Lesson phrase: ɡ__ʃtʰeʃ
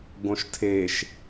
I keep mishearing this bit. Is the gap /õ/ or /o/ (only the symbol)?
õ